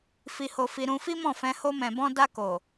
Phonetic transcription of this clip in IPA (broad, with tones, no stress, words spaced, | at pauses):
fi˧ho˧fi˧ ɾũ˧fi˦mɔ̃˦˨fɛ̃˧ ho˧mɛ̃˨bɔ̃˧ da˧ko˨